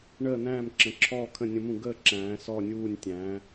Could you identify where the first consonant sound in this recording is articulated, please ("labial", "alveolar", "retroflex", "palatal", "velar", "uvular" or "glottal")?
retroflex